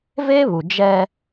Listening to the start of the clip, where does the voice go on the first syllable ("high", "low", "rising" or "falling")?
high